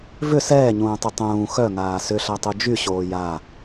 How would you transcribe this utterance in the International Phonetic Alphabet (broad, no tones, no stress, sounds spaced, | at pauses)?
v ʏ s ɛː ɲ ũː tˤ ʏ tˤ ũː x œ ŋ aː s ʏ ɬ a tˤ u d͡ʒ y ɕ oː j a